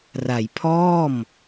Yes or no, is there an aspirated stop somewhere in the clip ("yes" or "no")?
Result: yes